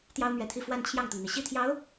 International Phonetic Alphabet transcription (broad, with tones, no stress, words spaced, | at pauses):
t̪jɑ˥ʊ̯mɥɛ˧˥t̪ʰi˥˧ fwa˥˧nt͡ɕʰjɑ˥˩ŋt̪ʊ˩ŋn̪i˩ ɕi˥˩t̪ʰjɑ˧˥ʊ̯